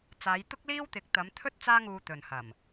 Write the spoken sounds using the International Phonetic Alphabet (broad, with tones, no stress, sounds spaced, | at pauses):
t͡s aː˨˧ j t̪ ʊ˥ k̚ l iː˥ w t̪ ɪ˨˥ k̚ t̪ ɐ˨˧ m t̪ʰ ɵ˥ t̚ t͡s aː˥ ŋ uː˧ t̪ ɵ˨ n h ɐ˨˩ m